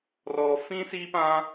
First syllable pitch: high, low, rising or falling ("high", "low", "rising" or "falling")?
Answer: low